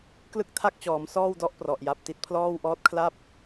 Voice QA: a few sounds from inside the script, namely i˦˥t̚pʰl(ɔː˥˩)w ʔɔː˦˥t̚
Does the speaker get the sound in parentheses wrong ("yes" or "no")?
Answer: no